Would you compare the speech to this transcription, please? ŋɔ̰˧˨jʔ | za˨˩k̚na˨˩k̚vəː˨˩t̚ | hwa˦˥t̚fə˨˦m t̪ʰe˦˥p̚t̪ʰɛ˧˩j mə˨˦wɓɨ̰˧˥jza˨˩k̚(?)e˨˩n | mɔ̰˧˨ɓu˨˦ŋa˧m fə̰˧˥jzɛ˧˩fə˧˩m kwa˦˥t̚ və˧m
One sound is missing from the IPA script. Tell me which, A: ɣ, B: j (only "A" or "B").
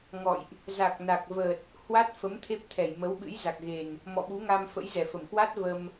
A